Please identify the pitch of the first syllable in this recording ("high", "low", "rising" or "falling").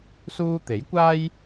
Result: high